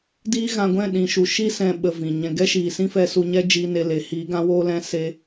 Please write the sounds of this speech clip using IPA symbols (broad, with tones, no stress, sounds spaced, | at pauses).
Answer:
d iː˦ ɣ ã˧ ɡʷ ɛ̃˦˨ ɗ ĩ˨ ʃ u˨ ʃ i˧ s ɛ̃˨ ɓ ə˨ v ĩ˨ ɲ ɛ̃˨ ɡ ɛ˦ ʃ iː˨ s ĩ˦ f ɛ˧ s u˧ ɲ ɛ˦ d͡ʒ i˦ n e˧ l e˨ h iː˨˦ ɡ ã˧ w oː˧ l ɛ̃˧ s e˧